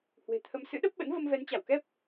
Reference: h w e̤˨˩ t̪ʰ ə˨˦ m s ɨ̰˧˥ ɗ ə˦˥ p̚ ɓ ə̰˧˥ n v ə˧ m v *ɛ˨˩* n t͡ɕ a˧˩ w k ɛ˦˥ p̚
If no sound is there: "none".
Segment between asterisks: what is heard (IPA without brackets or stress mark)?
ɛ˨˦